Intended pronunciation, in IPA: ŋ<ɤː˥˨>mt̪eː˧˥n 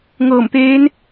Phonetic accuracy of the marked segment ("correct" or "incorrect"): incorrect